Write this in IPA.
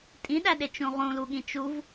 tʼ ĩ ɗ æ ɗ e t͡ʃ ũ ʁ ũ l u ɠ ĩ t͡ʃ u v

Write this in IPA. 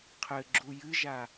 qʰ ɘ ɡ͡ǁ u j ɨ ʒ a

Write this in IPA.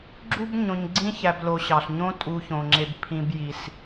ɡ͡ǁ u˥ b ɲ õ˨ ɲ ɡ͡ǀ ĩ˦ ç æ˨ b l o˨ ɕ ɑ˩ ɬ ɲ õ˦ tʼ u˨ ç õ˩ ŋ͡ǁ e˨ b pʰ ĩ˨ b j i˩ s

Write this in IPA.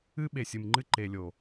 ɨ˦ ɓ e˨ sʲ ɨ˨ m ŋ͡ǃ ɨ˦ ǃ e˨ lʲ o˨

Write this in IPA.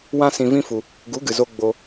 w ã˧ s ĩ˧ v ĩ˦ f u˧ | ɡ u˨˦ ɡ ɨ˨ z o˧ ɡ͡b o˧

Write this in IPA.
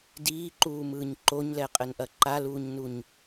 d iː ǃ uː m ɯː ɲ ǃ o ɲ l ɛ qʼ ɘ n ʔ ɐ ǃ a l uː ɲ n u ɲ

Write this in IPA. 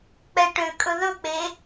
k͡p ɛ ʈ ø kʼ ɵ ð ɵ k͡p e

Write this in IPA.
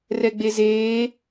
r ɛ ɡ͡b e z eː

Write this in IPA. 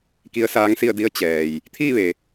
k i˧˥ ə̯ s aː˧˥ ŋ s i˥˨ ə̯ d i˧˥ ə̯ t͡ɕ ɛː˩ j | t̪ʰ iː˥˨ ʋ e˩

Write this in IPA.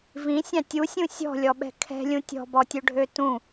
v ĩ sʲ ɑ̃ tʲ u sʲ ũ sʲ ɔ̤ lʲ ɔ ɓ ɛ̤ kʰ ɛ̤ lʲ ũ tʲ ɔ̤ b ɔ tʲ ɵ ɖʱ ø t ũ

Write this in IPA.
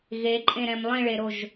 ɣ e ǃʼ ẽ ɾ ɛ̃ m lˠ ĩ ɭ e ɾ o ʒ

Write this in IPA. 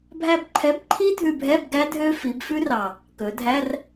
bʱ æ˧ b ǃʰ ɛ˨˥ b ǃʰ i˦˥ dʱ ʉ˧ bʱ ɛ˧˥˧ b ɡ æ˦˥ dʱ ø˦˥ f i˩˧ b f ʉ˦˥ r ɑ˨˩ | k ɵ˩˧ dʱ æ˧˥˧ r

